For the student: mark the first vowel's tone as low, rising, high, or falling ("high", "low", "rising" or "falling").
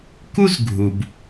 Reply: high